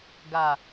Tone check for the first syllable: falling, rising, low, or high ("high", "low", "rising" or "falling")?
low